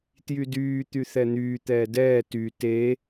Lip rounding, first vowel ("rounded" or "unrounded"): rounded